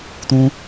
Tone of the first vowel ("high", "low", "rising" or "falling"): low